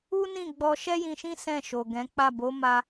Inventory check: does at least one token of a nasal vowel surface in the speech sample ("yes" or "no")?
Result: yes